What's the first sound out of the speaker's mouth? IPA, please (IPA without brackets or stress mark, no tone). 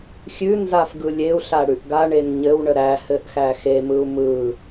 xʲ